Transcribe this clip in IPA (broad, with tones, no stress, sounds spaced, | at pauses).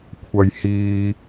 kʷʰ ɐ˨ j h iː˨